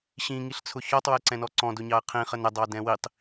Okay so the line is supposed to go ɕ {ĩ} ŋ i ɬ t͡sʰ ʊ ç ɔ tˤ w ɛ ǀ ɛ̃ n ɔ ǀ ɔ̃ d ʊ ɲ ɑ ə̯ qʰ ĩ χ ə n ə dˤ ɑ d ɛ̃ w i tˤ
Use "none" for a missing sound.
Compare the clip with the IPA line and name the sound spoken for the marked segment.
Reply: ĩ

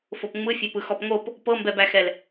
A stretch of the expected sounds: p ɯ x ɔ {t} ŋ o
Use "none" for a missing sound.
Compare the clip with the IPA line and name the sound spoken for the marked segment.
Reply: p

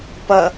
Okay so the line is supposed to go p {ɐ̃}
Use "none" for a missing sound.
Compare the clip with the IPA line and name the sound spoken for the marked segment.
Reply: ɐ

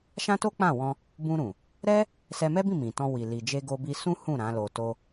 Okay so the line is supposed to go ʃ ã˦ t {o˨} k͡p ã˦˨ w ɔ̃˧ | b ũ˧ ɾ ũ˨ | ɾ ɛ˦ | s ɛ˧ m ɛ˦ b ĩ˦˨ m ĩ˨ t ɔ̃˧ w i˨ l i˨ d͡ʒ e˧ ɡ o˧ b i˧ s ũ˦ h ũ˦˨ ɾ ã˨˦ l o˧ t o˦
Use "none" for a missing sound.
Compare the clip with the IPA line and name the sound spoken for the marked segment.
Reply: o˦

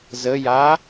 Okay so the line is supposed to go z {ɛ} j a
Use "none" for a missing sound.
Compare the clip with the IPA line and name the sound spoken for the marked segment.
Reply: ə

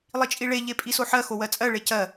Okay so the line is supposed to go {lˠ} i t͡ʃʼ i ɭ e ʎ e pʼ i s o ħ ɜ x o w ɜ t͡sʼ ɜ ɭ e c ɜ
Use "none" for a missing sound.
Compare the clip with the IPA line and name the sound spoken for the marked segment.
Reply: lˠ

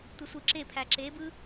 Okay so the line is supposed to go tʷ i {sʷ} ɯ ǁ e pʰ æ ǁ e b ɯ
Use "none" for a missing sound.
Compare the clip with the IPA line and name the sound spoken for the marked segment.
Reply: sʷ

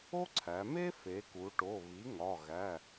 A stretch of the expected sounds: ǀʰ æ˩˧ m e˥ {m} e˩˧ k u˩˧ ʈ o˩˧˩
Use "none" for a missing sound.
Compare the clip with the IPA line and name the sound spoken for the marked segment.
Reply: f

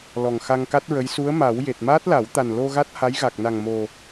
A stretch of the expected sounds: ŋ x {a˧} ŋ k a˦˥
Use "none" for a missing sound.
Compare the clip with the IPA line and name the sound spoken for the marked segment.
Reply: a˧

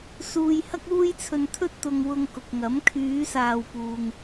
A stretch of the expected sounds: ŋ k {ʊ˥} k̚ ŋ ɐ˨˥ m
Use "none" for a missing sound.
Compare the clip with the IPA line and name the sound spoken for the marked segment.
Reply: ʊ˨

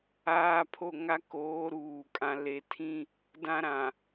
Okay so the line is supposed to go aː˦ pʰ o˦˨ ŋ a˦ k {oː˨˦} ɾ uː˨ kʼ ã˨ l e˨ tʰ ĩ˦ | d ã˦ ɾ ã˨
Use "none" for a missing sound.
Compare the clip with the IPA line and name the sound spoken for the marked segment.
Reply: oː˨˦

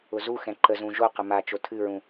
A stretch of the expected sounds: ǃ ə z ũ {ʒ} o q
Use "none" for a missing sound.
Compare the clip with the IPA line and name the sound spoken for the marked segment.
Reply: ʒ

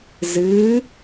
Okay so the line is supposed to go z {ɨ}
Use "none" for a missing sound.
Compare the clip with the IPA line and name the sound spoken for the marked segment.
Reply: ɨ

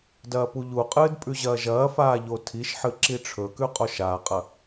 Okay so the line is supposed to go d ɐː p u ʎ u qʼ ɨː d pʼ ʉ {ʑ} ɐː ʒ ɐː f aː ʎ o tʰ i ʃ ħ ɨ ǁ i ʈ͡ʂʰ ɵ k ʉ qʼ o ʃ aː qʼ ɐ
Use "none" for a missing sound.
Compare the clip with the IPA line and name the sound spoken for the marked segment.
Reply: ʑ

